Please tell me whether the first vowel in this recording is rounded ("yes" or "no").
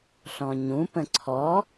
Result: yes